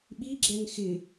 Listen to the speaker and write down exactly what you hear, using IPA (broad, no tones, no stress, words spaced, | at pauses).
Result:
ɓiɡ͡ǁɛŋ xɪ